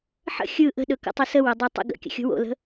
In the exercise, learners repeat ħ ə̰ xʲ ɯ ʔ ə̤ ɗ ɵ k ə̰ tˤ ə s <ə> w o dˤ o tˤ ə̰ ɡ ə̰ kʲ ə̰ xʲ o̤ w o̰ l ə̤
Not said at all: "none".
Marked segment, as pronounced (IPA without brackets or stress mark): ə